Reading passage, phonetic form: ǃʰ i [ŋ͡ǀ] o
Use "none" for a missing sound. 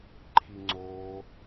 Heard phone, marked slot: ŋ͡ǀ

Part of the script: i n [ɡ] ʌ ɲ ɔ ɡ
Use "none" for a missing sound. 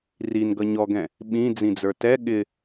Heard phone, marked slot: ɡ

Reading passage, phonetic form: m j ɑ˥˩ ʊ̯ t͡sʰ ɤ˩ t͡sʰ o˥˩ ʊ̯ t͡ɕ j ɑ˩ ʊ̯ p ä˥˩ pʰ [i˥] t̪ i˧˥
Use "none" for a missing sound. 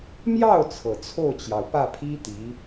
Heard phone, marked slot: i˥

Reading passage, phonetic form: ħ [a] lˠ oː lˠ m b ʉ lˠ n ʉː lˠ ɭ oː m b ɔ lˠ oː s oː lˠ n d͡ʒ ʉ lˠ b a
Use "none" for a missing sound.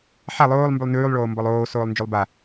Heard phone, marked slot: a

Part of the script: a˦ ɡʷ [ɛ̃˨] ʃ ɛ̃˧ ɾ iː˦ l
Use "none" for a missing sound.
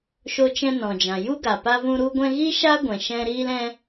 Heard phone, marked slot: ɛ̃˨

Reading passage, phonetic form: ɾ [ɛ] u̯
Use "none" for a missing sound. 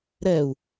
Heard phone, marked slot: ɛ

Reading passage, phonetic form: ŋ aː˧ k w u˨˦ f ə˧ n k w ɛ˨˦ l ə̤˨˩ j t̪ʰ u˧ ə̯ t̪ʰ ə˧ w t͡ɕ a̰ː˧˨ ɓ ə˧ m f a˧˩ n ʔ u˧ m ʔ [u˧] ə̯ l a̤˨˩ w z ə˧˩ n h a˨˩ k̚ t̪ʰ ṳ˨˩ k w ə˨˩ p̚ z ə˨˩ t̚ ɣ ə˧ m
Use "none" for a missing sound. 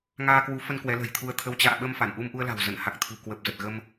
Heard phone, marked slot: u˧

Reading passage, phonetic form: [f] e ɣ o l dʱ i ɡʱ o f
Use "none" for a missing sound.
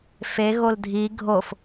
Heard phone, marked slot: f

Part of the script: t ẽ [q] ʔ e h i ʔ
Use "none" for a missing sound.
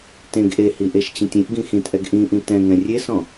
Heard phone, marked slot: ɡ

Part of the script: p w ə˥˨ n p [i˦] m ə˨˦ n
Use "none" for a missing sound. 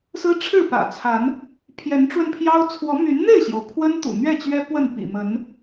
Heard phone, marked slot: ḭ˨˩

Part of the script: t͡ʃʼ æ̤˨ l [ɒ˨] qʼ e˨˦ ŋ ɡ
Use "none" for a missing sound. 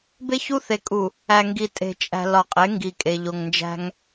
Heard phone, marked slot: ɒ˨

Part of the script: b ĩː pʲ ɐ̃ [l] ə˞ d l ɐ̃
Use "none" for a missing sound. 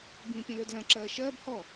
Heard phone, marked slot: l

